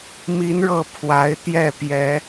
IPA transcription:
m i˨˦ n ɻ ɤ˨˩ pʰ w a˨˦ ɪ̯ t̪ j ɛ˥˨ p j ɛ˨˦

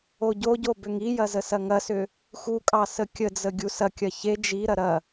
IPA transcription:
o ɟ o ɟ o b ʏ ŋ i j ɐ z ə s ɐ ŋ ɐ s ʏ | x u kʼ ɑ s ə kʲ ə d͡z ə ɡʲ u s ɐ kʲ ɐ ç e d͡ʒ i ɾ ɐ ɾ ɐ

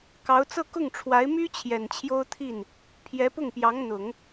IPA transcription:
k ɑ˧˥ ʊ̯ t͡s ɤ˥˧ k ʊ˥˩ ŋ ʈ͡ʂʰ w a˧˥ ɪ̯ m y˥ t͡ɕʰ j ɛ˨˩ n t͡ɕʰ j o˥ ʊ̯ t̪ʰ i˥˩ n | pʰ j ɛ˧˥ p ʊ˥˩ ŋ p j ɑ˧˥ ŋ n̪ ʊ˨˩˦ ŋ

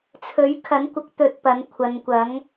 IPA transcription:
t͡sʰ ɵ˨˥ ɥ kʰ ɐ˨˥ n kʷ ɐ˨˥ k̚ t̪ ɵ˧ t̚ p ɐ˨˧ n kʷʰ ɐ˨˧ n kʷ ɐ˨˥ ŋ

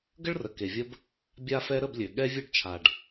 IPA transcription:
ɡ ə˦ ɭ r ə˩ k e˩ vʲ ə˦ b | bʲ a˦ f ɛ˦ ɾ ə˥˨ b lʲ ø˩ ɠ ɛ˦ vʲ ø˦ ɖ t͡ʃʰ a˩ ɖ

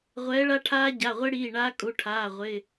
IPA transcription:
ʁʷ ɛː˨˥ ɭ a˦˥ ʈʰ aː˦˥ ɟ a˩˧˩ ʁʷ e˦˥ ɽ iː˩˧˩ ɳ aː˦˥ kʼ u˩˧˩ ʈʰ aː˩˧˩ ʁʷ ɪ˩˧˩

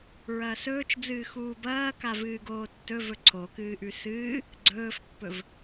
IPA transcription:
ɹ ɐː s ɵː t͡ʃ d͡z ɨː x uː b ɐː k a v ɨː ɡ oː tː ɵ v ɵ ǀʰ o k ɨː ʔ ʉ s ɨː | ɡ͡ǀ ɵː f pː ɵ v

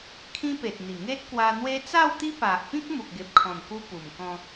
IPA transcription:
kʰ ĩ˦ p e˨ t̚ n̪ i˨˩ ŋ e˦ t̚ k w a˧ n̪ w e˦ t͡s a˥˧ w t̪ i˦ p a˨ ʔ p ĩ˦ k̚ m u˨ k̚ ɡ e˨ p̚ kʰ ɔ̃˨˩ n k u˧ p u˨˩ m k ɔ̃˧

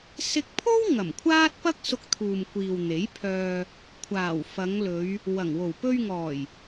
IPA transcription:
s ɪ˧ k̚ pʰ o˥ w ŋ ɐ˨˩ m kʷʰ aː˥ t̚ p ɐ˥ k̚ s ʊ˧ k̚ t̪ʰ uː˨ m kʷ iː˨ w n̪ e˨˥ j pʰ œː˧ | kʷʰ aː˨˩ w f ɐ˨˧ ŋ l ɵ˨˧ ɥ | w ɐ˨˩ ŋ w o˨˩ w p ɵ˧ ɥ ŋ ɔː˨˩ j

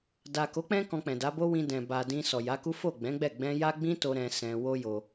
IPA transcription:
d a˨ k o˨˦ k͡p ɛ̃˦ k ɔ̃˧ k͡p ɛ̃˨ d a˨˦ b o˦ w ĩ˧ d ɛ̃˨ b a˨ d ĩ˧ s ɔ˨ j a˨˦ k u˦ f o˦˨ ɡ͡b ɛ̃˨˦ ɡ͡b ɛ˦˨ ɡ͡b ɛ̃˧ j a˦ ɡ͡b ĩ˦ t o˦ ɾ ɛ̃˧ s ɛ̃˧ w o˦ j o˧

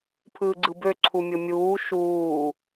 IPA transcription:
pʰ ɯː ɡ͡ǀ ɯ b ø ǀʰ u mʲ o mʲ uː ʃ uː

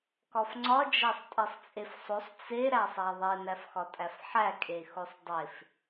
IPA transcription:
k ɒ f ŋ͡ǀ ɒ d͡ʒ æ sˤ tʼ e sˤ t͡sʼ e f sˤ o sˤ t͡s e ɾ æ sˤ æ ðˤ e n æ f x ɒ tʼ æ f ħ æ kʼ e x o sˤ dˤ e f

